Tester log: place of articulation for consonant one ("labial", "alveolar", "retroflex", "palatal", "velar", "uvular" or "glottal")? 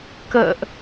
velar